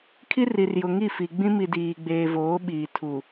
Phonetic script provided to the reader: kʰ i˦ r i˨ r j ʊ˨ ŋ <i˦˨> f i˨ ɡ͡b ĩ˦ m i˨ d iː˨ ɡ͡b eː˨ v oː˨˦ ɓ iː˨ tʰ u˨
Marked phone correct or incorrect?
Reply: correct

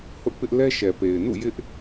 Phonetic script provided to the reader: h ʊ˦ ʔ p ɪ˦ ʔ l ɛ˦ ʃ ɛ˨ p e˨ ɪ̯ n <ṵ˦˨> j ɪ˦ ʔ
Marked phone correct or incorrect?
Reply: correct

